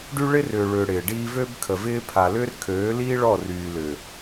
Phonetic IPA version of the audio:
ɖ y˦ ɭ ɪ˦ r ʏː˨ ɭ ʏː˨ ɽ ɪː˨ ɖ iː˦ v ø˦ b kʰ ə˨ v ɪː˦ pʰ a˨ l ʏː˦ r kʰ øː˨˦ l iː˦ ɭ ɔ˦˨ r yː˨ l ʏ˨

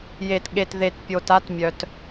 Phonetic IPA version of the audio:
j e˨ t ɠ e˨ t ð e˨ t pʲ o˨ t a˦ t mʲ œ˨ t

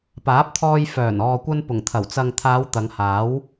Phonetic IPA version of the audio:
p aː˨˥ p̚ t̪ʰ ɔː˧ j f œː˨˩ n ɔː˨ kʷ ɐ˧ n p ʊ˨˩ ŋ t̪ʰ ɐ˨˩ w t͡s ɐ˨ ŋ t̪ʰ aː˨˧ w t̪ ɐ˨˧ ŋ h aː˨˥ w

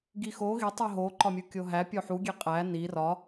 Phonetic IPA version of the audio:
ɡ i x o ɣ i tˤ u ɦ o ǃ ɒ mʲ u kʲ o ɦ æ pʲ o ħ u ɡʲ e qʼ æ n i r ɒ

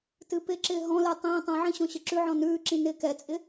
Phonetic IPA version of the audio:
t ɨ p ɪ ǁ ɪː ɦ ɔ̃ l ɪː tˤ ĩː tˤ ɛ̃ ʕ ĩ ɕ ɔ̃ ɕ ɘ ǁ ʉ ʕ ɔ̃ n ʉː ǁ ĩ n ɪː k ɛ t͡sʼ ɪ

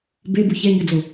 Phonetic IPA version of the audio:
b e b u ç ɛ ɲ ʊ d͡z o

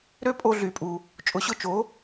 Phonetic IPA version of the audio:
ɾ ø˥ pʼ o˧ ɮ y˩ pʼ u˩ | t͡ʃʼ ʊ˩˥ ɕ ʊ˧ t͡ʃ o˩˥

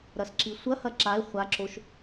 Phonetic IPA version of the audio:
ɾ ɐ s ǁ i sʷ ɐ h ɐ ǁ a ɪ̯ χʷ a ǁ o ʃ

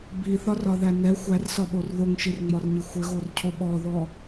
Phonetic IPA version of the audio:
b i θ ɒ r ɒ ð æ n ɛ xʷ æ r s ɒ ɓ o r ð o ŋ ʃ i r ŋ͡m ɒ r ɲ i xʷ ɘ ɣ o r cʰ o ɓ ɔ ð ɔ

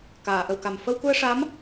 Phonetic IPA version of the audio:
k aː˨˩˨ ʔ ə˨˩˨ w k a˨˩ m f ə˧ w k u˧ ə̯ ʂ a˧˥ m

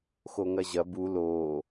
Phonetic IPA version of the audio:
x o ŋ ɐ ʑ ɐ b u l o

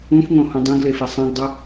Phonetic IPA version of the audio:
ũ f ŋ õ h ũ dˤ ẽ ɡ l e f e sˤ ẽ ɡ dˤ u

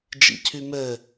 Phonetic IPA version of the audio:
d͡ʒ ḭ cʰ y m ɛ

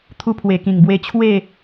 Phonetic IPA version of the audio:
t̪ʰ u˧ pʰ w e˨˩ k ĩ˨˩ ŋ b w e˧ t͡ɕʰ w e˥˧

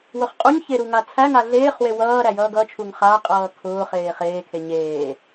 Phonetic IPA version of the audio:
w ʊ χ qʼ u ɲ ç e ɾ u ŋ a t͡sʰ æ ŋ a ɮ eː χ w e w ʌː ɾ æ j ʌː ɡ ʌ t͡ʃʰ u ŋ χ a qʼ ʌː kʰ ʊː χ eː χ eː kʰ e ɲ eː

